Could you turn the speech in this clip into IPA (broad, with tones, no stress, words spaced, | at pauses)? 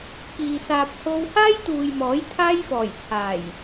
kiː˨saː˧p̚ ho˧whaː˥jt̪uː˨j mɔː˨˥jt̪ʰaː˥jfɔː˨˩jt͡sʰaː˨˩j